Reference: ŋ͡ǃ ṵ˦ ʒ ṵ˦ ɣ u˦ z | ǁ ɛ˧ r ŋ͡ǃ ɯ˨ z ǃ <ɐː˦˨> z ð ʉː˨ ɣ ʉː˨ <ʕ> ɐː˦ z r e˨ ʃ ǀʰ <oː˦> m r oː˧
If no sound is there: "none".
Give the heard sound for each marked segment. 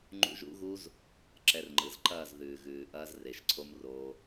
ɐː˦˨, ʔ, o˦

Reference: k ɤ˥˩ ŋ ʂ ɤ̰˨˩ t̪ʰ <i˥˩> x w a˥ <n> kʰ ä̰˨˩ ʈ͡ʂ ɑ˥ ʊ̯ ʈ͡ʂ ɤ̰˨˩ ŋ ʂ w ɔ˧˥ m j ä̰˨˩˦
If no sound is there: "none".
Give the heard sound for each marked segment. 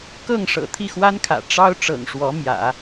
i˥˩, n

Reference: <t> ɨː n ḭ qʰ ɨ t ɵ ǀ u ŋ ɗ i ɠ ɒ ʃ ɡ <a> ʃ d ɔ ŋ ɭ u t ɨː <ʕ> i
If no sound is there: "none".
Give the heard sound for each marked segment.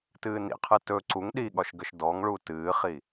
t, ə, χ

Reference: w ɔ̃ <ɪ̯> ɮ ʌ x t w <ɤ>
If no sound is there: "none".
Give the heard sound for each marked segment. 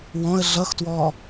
ə̯, ɔ

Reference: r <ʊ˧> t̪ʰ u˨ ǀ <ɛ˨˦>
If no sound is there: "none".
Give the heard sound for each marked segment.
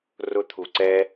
ʊ˧, ɛ˦

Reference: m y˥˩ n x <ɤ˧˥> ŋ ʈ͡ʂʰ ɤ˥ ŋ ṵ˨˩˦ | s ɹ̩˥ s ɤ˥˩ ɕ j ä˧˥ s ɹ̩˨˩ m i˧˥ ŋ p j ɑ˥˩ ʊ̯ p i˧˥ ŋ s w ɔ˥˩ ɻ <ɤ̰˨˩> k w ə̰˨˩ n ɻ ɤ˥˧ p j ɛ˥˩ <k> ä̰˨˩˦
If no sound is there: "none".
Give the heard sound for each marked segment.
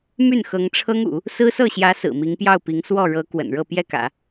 ɤ˧˥, ɤ˧˥, k

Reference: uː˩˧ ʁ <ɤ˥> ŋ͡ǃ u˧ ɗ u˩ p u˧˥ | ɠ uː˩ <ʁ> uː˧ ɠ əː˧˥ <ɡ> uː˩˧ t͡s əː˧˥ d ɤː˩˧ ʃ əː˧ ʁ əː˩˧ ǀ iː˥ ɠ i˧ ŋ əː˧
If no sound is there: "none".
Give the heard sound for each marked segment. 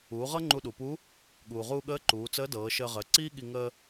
ɤ˥, ʁ, ǃ

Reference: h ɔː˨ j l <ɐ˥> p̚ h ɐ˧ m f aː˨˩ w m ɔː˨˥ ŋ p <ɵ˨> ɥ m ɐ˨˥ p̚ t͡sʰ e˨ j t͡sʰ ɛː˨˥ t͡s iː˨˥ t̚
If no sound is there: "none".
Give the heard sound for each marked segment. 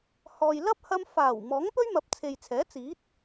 ɐ˥, ɵ˥

